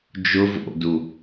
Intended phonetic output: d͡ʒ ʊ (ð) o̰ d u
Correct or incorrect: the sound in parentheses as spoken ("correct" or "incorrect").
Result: incorrect